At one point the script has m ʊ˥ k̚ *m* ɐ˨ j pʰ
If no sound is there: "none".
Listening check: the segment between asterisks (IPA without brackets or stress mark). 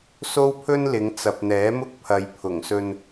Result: pʰ